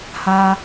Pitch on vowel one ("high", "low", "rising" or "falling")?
high